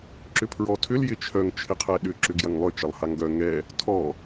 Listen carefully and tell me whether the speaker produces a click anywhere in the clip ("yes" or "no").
yes